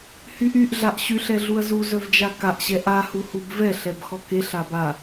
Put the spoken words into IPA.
hyʔyʔ ɮaʔɕyɬ ɛɮuɐ̯zu zœvd͡ʒakaʔ ɕɛʔa huhubvɛ ɬɛbxɔkeɬ aba

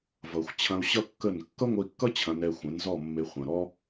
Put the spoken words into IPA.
vʌ˨xʷt͡ɕʰɐ̃˧u̯ ɕʌ˦kːə˦˨n kːʌ˦ŋʷə˧i̯kːʌ˦ t͡ɕʰɐ̃˧nɛ˧ xʷɛ̃˨˦nzɔ˦˨mːe˧ χʷɐ̃˨ ɾɔ˦

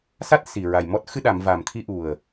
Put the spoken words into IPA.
sa˦˥t̚ si˨˩ɹa˨˩jmɔ˦˥t̚ xɨ˧ɗa˨˩˨m va˨˩mt̪ʰi˧ʔu˨˩ə̯

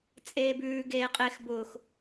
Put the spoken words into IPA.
t͡sʼeːbʉː ɡeːqʼex bʊːx

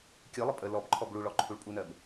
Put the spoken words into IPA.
kʲɯlˠə pʼə lɔbǃʰɔb ɭuɭɔǃʰuɭ pʼunɜb

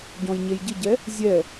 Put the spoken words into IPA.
ɟɔ̃jɲejɟɪɟɛ | zʲɛ

